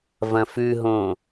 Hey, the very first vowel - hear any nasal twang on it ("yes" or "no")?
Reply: yes